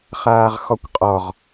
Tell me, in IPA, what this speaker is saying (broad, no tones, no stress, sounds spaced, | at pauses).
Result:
χ aː ʁ x ɔ kʷ qʼ ɔ ʁ